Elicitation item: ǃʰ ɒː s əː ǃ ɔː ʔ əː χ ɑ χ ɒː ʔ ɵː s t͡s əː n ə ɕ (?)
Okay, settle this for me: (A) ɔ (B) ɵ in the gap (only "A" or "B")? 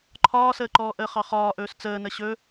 B